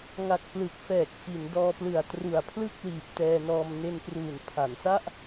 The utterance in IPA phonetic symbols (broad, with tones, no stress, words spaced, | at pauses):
ŋa˨˩k̚ plɯ˨˩k̚fɛː˨˩k̚ fi˩˦ndɔː˧plɯ˨˩a̯ tru˨˩a̯pʰlɯ˥˩k̚liː˨˩p̚ tɛː˧nɔː˧m ne˧npruː˨˩n pʰa˩˦nsa˥˩ʔ